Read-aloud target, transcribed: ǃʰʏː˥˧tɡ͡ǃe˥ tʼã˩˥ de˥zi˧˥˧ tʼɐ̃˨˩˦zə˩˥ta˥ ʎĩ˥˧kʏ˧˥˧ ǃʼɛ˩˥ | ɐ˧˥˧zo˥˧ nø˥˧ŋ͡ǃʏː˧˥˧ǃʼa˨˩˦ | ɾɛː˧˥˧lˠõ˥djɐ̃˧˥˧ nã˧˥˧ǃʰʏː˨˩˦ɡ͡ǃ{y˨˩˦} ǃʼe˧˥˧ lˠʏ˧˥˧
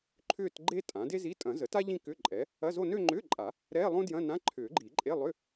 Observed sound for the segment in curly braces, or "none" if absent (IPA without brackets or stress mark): i˨˩˦